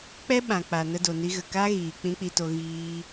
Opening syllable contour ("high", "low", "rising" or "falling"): high